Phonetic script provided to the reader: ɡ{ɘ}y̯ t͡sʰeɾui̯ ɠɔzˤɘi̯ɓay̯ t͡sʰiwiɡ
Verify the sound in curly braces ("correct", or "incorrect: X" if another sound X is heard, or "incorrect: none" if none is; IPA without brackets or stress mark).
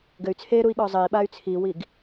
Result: correct